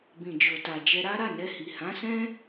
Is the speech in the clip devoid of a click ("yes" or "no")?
yes